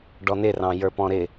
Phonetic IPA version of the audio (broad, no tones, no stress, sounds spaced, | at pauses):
ɖ ɔ n ɪ r ɑ̃ j ə˞ p ɔ̃ ɾ ɪ